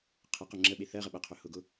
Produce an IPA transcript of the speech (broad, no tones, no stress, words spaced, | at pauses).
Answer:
qʰəqʊ ŋ͡ǁəɓe θɜʁəɓɜqʰɵ hʊɡʊ